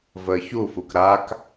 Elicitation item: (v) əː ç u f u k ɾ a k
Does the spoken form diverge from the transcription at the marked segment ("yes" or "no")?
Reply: no